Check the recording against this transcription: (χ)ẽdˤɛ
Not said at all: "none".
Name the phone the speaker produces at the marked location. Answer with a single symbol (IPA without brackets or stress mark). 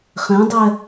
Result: χ